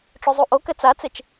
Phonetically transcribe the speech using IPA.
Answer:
ʈ͡ʂ o zˤ u ʔ o k ɛ t͡s a t͡s e t͡ʃ

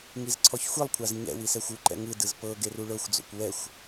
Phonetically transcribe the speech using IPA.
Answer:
ŋ i z ǀʰ ɔ ç xʷ i lˠ kʷʰ a z ɲ ɛ̰ w i s ɛ xʷ u ǃ ɛ̰ ŋ ɯ d ɯ z p ɤ ɡ e r u ɭ ɤ xʷ d͡z o̰ kʷ w ɛ xʷ

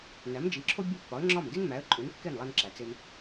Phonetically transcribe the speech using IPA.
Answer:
n æ˩˥ m d͡ʒ i˩˥ ǁʰ o˥ bʲ o˥˩ pː ɒ˩˥ ə̯ ŋ͡ǁ ɒ˥˩ m d i˥ n m æ˩˥ ə̯ ǃʼ u˩˥ n kː e˥˩ n lˠ æ˧ n ǁ æ˩ t͡s e˧ m

